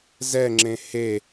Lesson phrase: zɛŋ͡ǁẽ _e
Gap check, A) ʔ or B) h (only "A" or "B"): B